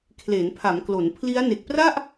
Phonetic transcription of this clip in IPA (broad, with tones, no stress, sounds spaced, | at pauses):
kʰ l e˩˦ n pʰ a˩˦ m k l o˩˦ n pʰ l i˦˥ a̯ n e˨˩ k̚ p r a˥˩ ʔ